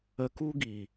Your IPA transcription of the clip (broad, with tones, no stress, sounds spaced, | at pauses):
ə˧ k u˦ ɡ i˨